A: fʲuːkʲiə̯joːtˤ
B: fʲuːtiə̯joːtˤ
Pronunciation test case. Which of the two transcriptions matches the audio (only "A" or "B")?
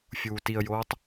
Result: B